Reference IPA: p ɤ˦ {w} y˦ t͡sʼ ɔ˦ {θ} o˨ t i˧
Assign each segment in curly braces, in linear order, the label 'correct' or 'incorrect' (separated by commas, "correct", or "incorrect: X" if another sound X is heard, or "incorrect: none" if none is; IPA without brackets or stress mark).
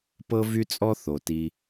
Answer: incorrect: v, correct